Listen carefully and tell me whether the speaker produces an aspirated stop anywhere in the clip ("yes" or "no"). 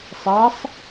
no